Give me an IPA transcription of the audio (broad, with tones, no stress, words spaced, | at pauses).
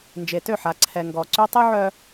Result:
nd͡ʒe˨tø˦˨ħa˨ ǀʰɛ˨ŋɡɔ˨ǀy˦ tˤy˦ʕœ˦